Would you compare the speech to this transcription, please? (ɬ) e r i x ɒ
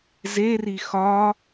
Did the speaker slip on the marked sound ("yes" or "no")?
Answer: yes